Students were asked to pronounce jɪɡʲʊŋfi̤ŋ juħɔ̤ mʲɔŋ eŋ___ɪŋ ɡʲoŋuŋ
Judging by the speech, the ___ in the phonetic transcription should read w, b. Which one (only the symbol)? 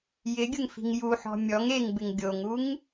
b